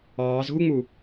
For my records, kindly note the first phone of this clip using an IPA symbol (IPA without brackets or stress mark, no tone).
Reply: ɑː